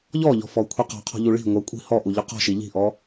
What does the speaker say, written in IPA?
ʎ ɔ ʎ ɔ̤ f ɔ kʷʰ i q ɔ̤ qʰ ɔ̤ ʎ u ɭ i̤ ŋʷ ɐ kʷʼ i̤ h ɔ ʔ u ʎ ʊ q ɔ̤ ʃ i ʎ i̤ ʔ ɔ

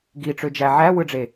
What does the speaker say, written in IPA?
ɡ i ʈ͡ʂ ø d͡ʒ æ ʕ æ w ɯ ɖ͡ʐ e

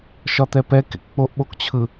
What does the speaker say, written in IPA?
ʃ ɒ t̪ ɛ p ɛ k ḛ k k͡p o ʔ ɓ o k t͡ɕʰ ɯ

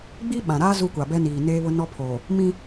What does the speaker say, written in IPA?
ɡ͡b i˦ ɓ ã˨ ɾ aː˦ z u˦ kʷ a˨ b ɛ˦ n iː˨ n eː˦ β ʊ˦ n ɔ˦ pʰ oː˨ | m ĩ˦

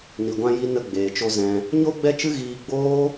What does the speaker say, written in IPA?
n i˨ ɡʷ ã˧ j i˧ n ə˧ ɡ͡b eː˨ t͡ʃ o˧ z ɛ̃˧ | ɲ o˦ ɡ͡b ɛ˦ t͡ʃ ɨ˦ ɣ iː˧ ɡ͡b oː˦

